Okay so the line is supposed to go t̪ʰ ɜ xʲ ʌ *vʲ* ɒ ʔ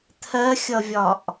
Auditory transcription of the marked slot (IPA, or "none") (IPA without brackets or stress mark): vʲ